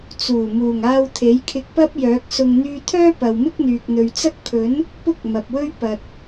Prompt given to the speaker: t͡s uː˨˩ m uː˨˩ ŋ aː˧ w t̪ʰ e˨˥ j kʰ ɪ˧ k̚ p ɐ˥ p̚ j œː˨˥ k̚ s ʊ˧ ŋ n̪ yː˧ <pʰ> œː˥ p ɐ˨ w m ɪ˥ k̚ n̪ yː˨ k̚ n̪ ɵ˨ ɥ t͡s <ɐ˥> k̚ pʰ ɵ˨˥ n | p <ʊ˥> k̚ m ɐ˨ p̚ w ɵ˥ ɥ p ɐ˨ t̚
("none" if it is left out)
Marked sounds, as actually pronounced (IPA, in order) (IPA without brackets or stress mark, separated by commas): t̪ʰ, ɐ˥, ʊ˥